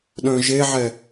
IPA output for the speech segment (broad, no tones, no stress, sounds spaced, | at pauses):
ɗ œ̃ ʒ e ʕ ɛ